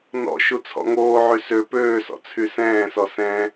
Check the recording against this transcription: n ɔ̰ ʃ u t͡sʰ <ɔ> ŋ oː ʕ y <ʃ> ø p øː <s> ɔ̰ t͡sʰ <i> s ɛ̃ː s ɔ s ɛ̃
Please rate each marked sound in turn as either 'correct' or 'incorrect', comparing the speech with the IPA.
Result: incorrect: ɔ̰, incorrect: s, correct, incorrect: y

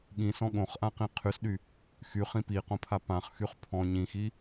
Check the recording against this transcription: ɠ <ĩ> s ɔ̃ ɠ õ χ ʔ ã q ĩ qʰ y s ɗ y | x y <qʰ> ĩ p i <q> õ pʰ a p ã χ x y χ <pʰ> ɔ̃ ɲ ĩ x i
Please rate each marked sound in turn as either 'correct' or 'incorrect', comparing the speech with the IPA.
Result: correct, incorrect: χ, correct, correct

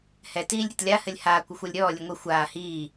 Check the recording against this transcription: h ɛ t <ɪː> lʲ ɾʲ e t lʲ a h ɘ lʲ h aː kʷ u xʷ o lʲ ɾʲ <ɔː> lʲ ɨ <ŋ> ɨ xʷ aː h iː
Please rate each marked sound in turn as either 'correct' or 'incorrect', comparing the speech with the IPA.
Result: incorrect: iː, correct, incorrect: ŋʷ

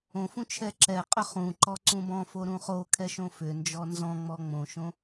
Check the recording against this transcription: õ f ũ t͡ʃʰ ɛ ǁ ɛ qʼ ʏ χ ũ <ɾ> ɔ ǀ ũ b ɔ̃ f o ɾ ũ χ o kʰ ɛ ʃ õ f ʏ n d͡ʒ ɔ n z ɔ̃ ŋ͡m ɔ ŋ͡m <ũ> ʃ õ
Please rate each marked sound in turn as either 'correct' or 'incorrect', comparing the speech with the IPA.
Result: incorrect: ǃ, incorrect: õ

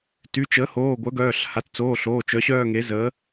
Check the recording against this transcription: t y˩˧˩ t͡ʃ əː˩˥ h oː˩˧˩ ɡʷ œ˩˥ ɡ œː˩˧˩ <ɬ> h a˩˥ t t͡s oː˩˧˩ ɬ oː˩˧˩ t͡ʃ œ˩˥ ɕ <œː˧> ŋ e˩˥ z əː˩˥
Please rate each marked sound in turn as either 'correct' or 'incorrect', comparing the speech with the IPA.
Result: correct, incorrect: œː˥˧

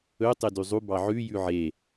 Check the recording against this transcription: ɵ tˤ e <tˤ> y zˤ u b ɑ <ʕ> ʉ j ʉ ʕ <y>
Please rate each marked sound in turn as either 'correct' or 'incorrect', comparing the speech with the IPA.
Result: incorrect: d, correct, incorrect: e

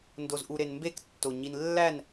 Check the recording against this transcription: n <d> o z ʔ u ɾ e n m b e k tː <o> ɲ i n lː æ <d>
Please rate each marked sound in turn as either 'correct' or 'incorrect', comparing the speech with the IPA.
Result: correct, correct, incorrect: n

